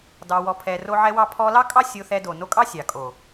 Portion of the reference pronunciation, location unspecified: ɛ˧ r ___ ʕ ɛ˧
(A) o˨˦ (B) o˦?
B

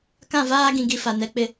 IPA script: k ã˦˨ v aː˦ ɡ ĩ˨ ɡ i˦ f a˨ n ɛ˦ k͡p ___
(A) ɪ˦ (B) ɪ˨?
A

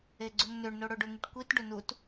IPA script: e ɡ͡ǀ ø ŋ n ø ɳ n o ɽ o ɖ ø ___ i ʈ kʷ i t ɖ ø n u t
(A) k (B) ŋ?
B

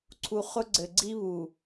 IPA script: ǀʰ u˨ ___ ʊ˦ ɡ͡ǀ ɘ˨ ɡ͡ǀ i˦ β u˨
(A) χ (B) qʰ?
A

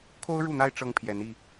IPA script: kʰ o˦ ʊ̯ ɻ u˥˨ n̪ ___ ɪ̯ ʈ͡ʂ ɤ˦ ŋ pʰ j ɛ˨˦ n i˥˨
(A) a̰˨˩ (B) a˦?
B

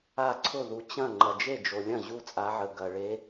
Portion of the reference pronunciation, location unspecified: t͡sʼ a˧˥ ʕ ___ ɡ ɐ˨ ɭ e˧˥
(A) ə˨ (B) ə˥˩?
A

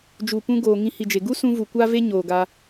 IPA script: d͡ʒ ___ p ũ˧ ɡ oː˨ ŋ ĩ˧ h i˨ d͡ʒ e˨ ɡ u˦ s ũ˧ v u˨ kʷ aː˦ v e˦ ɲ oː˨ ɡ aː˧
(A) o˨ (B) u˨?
B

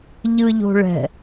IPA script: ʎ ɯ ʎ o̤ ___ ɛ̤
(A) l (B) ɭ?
B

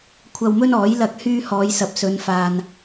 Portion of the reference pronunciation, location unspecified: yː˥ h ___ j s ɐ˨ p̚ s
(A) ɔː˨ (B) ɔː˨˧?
B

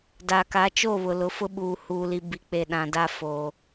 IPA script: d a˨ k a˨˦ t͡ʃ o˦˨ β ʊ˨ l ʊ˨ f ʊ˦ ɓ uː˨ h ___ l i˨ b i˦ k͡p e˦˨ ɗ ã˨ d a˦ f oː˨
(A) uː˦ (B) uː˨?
B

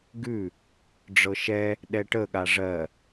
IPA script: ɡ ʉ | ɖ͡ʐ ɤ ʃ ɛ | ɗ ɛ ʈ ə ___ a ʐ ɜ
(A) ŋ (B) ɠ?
B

